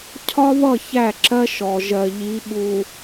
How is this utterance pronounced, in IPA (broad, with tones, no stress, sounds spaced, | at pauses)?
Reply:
cʰ ɒ˦ β ʌ˦˨ ç æ˦˨ ǁ ɜ˦ ʃ ɔ˨ ʒ ɜ˨ ʎ i˨˦ ɓ u˨